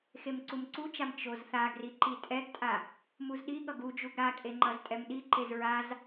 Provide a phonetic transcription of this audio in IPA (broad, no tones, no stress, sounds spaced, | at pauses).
x e m ǀ u m ǀ u t͡ʃ a m t͡ʃ o z θ a ɡ r i ǃ i tʼ ɛ ɡ tʼ a | m u z ɗ i ɠ ʌ ɡ u d͡ʒ u ɡ ɾ a kʼ e ŋ͡ǃ ʌ z tʼ ɛ m ɗ i ǃ e z ɹ a z